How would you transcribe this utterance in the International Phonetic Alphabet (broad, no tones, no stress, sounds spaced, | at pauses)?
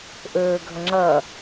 ʔ ɵː ɡʱ ʌ ŋ͡ǁ ʌː